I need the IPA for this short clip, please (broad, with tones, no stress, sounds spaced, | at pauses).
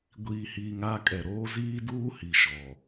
ɡʷ iː˨ h iː˨ ŋ a˦˨ kʼ ɛ˨ ɾ oː˦ z iː˦ d uː˦ h i˨ ʃ ɔ˨